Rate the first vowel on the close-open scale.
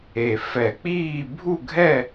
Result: mid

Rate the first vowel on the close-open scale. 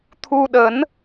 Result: close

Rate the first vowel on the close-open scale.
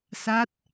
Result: open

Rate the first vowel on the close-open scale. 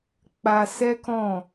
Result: open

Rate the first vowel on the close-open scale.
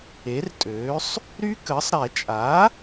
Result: mid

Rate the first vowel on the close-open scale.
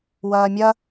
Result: open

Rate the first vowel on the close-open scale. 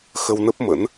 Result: mid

